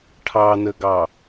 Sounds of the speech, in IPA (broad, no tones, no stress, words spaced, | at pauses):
ʈʰɑnəɡɑ